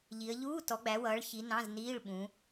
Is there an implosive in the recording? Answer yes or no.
yes